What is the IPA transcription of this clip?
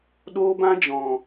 ɗ oː˦ b ã˦ d͡ʒ ɔ̃˨

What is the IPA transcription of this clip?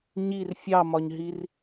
ɲ i r fʲ ɑ m ɒ ɲ ɦ i r

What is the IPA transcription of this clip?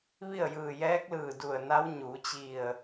ʋ i˥˨ ə̯ j ɯː˧˩ j ɛː˧˥ k̚ l ɯː˧˩ d u˧˩ ə̯ n a˧˥ w ɲ uː˩˧ t͡ɕ i˧˩ ə̯

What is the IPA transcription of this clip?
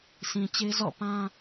sʰ ĩ˨ t͡ɕ e˦ z ɔ̰˦˨ p ã˦

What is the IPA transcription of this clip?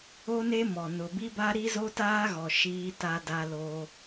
o˦ n e˦ m ɔ˨ n ʊ˨ b i˦ b a˦ ɾ i˦ z o˦ t aː˦ ɣ ɔ˨ ʃ iː˦ t a˦ d a˦ l o˦

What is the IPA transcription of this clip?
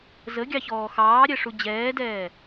z ə ɡʲ ɑ ç ɔː x ɑː ɾʲ ɛ ʂ u d͡ʑ ɛː d ɛː

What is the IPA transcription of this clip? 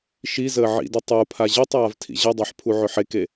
ʃ i z əː ʕ ḭ d ʏ tˤ u pʰ a ʑ i tˤ aː v tʰ ḭ ʑ ɐ dˤ ɑ ħ pʰ u ʕ ʏ ħ e k e

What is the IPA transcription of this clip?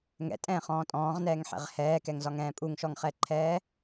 ŋ ɛ̰ tʼ ɛ̃ː χ ɔ̃ː tʼ ɔ̃ː ʁ n ɛː ŋ ħ ɛ̰ ʁ h ɛː k ɛ ŋ z ɒ ŋ ɛ̃ː pʼ u ŋ ʃ ɔ ŋ χ ɛ ǃʰ ɛː

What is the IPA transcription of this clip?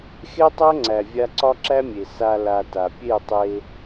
x e˦ tˤ æ˦ ŋ͡ǀ æ˨ vʲ a˧ ǀ ɒ˦ ǁ æ˦ mʲ e˨ s a˧ l a˧ t a˨ pʲ e˦˨ tˤ e˧

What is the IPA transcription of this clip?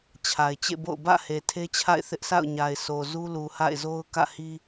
t͡ɕʰ a˨ ɪ̯ t͡ɕ ḛ˦˨ b o̰˦˨ ʊ̯ b ä̰˦˨ h e˨ tʰ e˦ t͡ɕʰ a̰˦˨ ɪ̯ θ ɪ˦ ʔ s a̰˦˨ ʊ̯ ɲ a˨ ɪ̯ s o˨ z u˦ l u˨ h a̰˦˨ ɪ̯ z o˦ ʊ̯ k ä̰˦˨ h i˦

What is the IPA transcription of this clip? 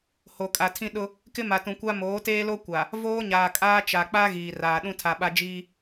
h o˨ kʼ a˨ tʰ ĩ˦ ɗ ʊ˦ | k ɪ˦ m a˨ t ũ˨ kʷ a˦ m oː˨˦ t eː˦ l o˦ kʷ a˨ | v oː˦ ɲ aː˨ kʼ aː˦ t͡ʃ a˨ k͡p a˦ ɣ iː˨ r aː˨ ɗ ũ˦ tʰ a˨ ɓ a˦ d͡ʒ iː˦

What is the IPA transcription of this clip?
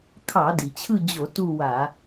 kʰ ɑ˧˩˧ d i˩ t͡ɕʰ ɯ˦˨ d͡ʑ o˧˩˧ t u˦˨ w a˧˩˧

